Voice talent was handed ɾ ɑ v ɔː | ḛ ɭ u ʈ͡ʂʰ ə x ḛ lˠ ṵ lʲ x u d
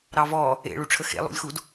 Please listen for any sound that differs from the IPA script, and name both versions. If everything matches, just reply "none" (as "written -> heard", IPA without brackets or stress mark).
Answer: none